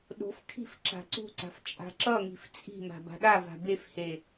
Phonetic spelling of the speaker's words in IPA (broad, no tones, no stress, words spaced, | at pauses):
ɗo̤fkʰi̤f ǁa̤ǀṳǀa̤f t͡ʃʼa̤ǁʌŋi̤f t͡sʼi̤ma̤ ba̤ɗava̤ befhe